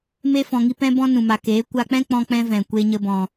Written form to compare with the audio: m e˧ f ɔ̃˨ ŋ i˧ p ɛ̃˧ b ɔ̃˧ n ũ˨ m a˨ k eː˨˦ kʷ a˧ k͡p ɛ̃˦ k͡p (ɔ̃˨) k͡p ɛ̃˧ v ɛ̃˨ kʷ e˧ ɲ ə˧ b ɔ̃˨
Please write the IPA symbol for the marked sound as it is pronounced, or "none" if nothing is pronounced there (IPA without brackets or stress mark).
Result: ɔ̃˧